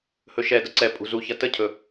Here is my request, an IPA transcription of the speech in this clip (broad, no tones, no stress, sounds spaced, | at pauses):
h ɵ ʃ ɛ d ə ǀ ɛ pʼ ṳ z u ç ɐ t ə cʰ ɵ